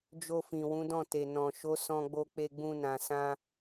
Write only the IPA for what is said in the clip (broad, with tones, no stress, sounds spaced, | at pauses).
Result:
d͡ʒ o˧ f ĩ˨ w ũ˨˦ d ɔ̃˦˨ t e˨ n ɔ̃˨ ʃ o˨˦ s ɔ̃˧ ɡ͡b o˧ k͡p e˧ ɡ͡b ũ˧ n ã˨ s ã˧